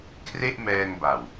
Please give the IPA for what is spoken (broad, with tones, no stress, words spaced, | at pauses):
kʰre˥˩ʔmɛː˧ŋba˨˩w